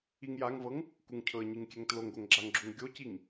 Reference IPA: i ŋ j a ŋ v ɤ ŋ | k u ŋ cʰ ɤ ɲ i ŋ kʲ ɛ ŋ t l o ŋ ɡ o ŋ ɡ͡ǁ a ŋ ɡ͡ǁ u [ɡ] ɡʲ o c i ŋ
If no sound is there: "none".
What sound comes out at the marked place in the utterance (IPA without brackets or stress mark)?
ŋ